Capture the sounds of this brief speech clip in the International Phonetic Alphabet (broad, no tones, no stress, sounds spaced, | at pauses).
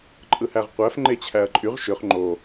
ǃʼ ɯ h æ ʁ qʷ æ f ŋ͡ǃ e t͡ɕʰ æ ɐ̯ ǃʼ y ʁ ʃ ø χ ŋ͡ǃ o